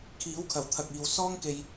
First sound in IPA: kʰ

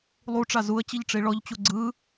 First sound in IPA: lˠ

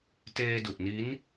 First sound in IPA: t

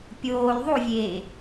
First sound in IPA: pʲ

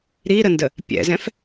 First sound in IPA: ɾ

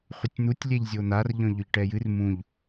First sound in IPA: χʷ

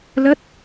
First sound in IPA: l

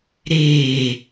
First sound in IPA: ɾ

